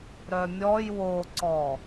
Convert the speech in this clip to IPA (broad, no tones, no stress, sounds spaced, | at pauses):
ɾ œ mʲ ɔ j w o ǀ ɔ